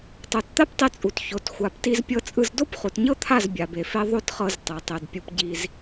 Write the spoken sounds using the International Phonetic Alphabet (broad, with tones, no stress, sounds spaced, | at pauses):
tˤ o˨ t t̪ a˦ p tˤ i˧ t͡sʼ u˨ t ç o˨ t xʷ a˨ p t i˧ z pʲ ɤ˧ t͡sʼ ɯ˧ z d o˦ p χ u˨ t ɲ ɤ˦ t̪ʰ a˦˨ z bʲ a˨ b e˨ f e˧ ðˤ o˦ t χ ɤ˧ z tˤ ɛ˨ tˤ e˨ d pʲ u˧ p ɟ i˧ z